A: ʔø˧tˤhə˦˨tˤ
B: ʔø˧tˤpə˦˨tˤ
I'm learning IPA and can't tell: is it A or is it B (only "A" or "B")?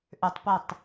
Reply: B